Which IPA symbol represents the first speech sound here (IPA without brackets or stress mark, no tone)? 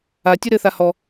a